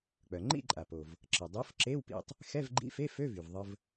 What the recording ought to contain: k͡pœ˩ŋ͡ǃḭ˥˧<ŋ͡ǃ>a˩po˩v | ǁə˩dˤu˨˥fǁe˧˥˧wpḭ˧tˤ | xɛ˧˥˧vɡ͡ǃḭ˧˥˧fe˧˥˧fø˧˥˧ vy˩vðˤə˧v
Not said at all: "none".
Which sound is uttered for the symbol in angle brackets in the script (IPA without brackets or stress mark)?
ǃʼ